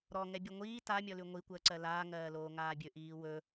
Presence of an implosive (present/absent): absent